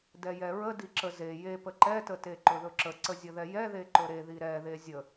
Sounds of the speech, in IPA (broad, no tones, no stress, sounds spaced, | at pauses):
d ɛ j ɛ ɹ ə d i ǁ ə z e j e p ə ǃ ɛ t ə t e ǃ ɵ ð ɵ ǁ ə ǀ ə zʲ ə ð ɛ j ɛ ð e ǃ ɵ ɾ e ð i ɾ ɛ ð e zʲ ə